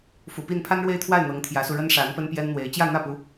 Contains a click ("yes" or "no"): no